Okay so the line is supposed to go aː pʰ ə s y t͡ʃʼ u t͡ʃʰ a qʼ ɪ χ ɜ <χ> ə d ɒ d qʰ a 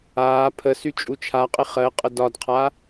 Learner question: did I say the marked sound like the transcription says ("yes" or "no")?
no